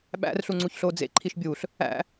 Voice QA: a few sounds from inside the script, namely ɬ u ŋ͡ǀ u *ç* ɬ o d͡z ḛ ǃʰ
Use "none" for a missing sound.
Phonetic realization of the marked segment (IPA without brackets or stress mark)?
ç